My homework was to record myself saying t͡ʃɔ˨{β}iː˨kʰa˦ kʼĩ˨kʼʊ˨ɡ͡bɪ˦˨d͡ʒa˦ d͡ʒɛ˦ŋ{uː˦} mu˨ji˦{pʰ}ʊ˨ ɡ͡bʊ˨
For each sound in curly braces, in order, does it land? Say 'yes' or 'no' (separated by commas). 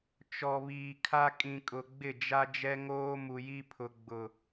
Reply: yes, no, yes